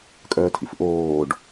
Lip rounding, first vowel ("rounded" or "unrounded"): rounded